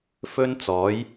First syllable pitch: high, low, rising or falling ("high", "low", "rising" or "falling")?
high